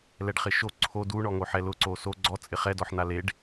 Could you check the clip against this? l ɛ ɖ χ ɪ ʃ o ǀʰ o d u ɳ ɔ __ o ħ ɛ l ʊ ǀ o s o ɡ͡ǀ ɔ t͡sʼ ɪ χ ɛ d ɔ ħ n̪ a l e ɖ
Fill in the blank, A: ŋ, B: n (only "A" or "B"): A